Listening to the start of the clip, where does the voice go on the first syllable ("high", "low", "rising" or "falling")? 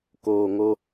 low